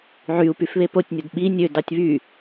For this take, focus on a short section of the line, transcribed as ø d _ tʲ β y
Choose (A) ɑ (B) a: A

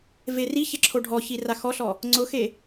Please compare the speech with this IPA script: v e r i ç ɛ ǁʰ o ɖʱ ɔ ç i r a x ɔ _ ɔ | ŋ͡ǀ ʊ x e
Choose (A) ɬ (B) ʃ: A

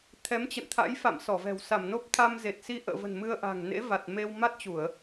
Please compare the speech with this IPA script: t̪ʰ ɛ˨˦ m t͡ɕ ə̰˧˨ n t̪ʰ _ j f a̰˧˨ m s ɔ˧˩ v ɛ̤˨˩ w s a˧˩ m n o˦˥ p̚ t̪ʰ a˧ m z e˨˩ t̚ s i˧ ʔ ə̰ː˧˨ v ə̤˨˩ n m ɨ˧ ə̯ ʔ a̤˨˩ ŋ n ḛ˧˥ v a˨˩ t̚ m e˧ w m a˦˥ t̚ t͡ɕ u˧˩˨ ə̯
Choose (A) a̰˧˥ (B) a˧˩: A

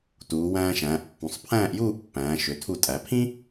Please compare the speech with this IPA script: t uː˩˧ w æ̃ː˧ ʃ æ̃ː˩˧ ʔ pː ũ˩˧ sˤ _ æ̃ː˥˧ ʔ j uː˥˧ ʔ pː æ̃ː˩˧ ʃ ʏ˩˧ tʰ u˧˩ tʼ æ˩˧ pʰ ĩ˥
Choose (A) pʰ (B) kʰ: A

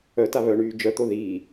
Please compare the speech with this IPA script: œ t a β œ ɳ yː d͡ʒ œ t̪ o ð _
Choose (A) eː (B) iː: B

